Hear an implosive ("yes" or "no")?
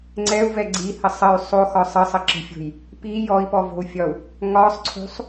no